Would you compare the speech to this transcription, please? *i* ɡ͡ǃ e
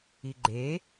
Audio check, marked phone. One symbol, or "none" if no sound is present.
i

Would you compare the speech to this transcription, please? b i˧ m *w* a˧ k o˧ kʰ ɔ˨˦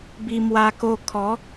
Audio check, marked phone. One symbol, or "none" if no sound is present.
w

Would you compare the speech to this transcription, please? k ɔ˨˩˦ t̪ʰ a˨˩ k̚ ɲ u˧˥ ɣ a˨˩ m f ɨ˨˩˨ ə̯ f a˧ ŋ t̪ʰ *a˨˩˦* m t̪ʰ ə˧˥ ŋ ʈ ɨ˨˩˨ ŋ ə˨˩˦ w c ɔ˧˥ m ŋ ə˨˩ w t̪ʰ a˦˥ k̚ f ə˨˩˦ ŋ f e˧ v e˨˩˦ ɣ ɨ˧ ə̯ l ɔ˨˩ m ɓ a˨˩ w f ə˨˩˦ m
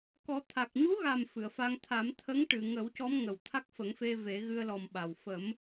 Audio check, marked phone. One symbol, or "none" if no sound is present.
a˨˩˦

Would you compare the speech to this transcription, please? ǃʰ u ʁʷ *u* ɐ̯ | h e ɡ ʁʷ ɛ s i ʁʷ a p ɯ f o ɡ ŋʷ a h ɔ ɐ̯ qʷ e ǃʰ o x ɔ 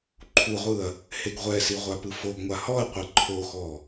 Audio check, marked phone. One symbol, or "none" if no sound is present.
ɯ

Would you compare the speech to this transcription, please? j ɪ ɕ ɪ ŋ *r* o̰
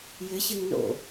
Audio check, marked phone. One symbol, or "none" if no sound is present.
n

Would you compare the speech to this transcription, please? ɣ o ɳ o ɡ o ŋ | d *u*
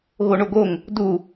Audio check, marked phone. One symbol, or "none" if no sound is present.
u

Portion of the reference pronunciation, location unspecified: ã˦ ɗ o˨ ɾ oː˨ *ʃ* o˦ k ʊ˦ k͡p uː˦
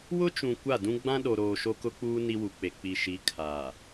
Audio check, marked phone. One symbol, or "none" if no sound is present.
ʃ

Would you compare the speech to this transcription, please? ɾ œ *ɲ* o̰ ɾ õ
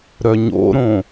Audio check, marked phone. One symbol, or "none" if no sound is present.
ɲ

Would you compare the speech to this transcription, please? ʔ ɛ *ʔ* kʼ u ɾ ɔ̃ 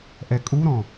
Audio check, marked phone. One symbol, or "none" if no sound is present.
none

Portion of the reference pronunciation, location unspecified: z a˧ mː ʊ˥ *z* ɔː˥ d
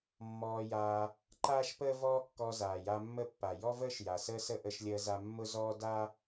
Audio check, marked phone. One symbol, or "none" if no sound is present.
z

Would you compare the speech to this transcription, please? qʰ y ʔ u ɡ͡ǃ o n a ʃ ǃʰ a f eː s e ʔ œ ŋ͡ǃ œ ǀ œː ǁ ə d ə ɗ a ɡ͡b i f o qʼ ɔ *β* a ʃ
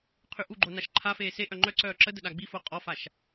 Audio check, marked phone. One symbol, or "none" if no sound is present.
f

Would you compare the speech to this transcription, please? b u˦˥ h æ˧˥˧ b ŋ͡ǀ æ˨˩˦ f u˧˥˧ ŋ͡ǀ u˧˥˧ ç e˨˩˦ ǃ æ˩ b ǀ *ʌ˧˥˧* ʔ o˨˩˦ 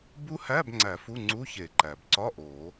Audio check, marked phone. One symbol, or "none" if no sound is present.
ɒ˧˥˧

